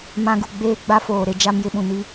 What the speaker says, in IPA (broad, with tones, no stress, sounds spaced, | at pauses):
m ã˦ ɡ u˦˨ ɡ͡b eː˦ ɡ͡b a˦ f oː˨ ɾ e˦ d͡ʒ a˦ m j ɪ˦ ɓ ũ˨ n i˦